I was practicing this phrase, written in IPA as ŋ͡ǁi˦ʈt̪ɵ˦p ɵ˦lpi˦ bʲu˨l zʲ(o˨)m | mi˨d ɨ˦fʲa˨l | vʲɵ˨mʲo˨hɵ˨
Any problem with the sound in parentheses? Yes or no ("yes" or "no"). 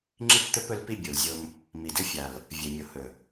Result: yes